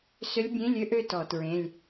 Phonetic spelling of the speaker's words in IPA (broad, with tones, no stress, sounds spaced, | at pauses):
s ʏ˧˥ lʲ bʲ ẽ˧˥˧ lʲ ø˥˧ ʔ ø˥˧ t ɔ˧˩˧ t ɹ ẽ˧˥˧ lʲ